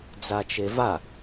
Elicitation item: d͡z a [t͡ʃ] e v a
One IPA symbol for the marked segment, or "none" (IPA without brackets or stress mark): t͡ʃ